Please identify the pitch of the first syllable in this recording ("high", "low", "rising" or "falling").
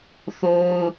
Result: high